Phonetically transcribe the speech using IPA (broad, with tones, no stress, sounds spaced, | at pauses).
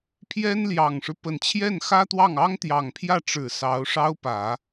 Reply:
pʰ j ɛ˥ n l j ɑ˨˩ ŋ ʂ ɻ̩˦ p ə˨˩ n t͡ɕʰ j ɛ˥˩ n x ä˥ t̪ w ɑ˥˩ ŋ ɑ˥ ŋ t̪ j ɑ˨˩ ŋ pʰ j ä˥˩ ʈ͡ʂ ɻ̩˨˩ s ɑ˧˥ ʊ̯ ʂ ɑ˥ ʊ̯ p ä˨˩˦